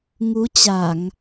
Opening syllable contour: rising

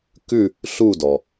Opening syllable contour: falling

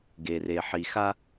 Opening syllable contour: low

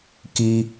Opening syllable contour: high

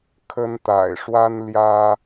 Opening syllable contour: high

